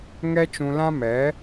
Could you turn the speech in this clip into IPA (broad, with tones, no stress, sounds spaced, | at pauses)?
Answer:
ŋ ɛ˦ t͡ʃ ũ˧ l ã˦ m ɛ˨˦